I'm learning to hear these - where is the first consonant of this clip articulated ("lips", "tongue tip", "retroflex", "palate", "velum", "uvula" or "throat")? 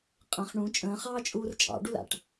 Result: uvula